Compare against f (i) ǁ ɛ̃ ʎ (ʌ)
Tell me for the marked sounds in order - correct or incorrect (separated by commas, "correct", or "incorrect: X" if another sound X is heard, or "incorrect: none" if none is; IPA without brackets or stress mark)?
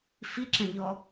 correct, incorrect: ɔ